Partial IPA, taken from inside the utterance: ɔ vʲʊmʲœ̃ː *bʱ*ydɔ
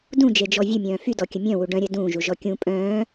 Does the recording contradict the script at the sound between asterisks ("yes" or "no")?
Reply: yes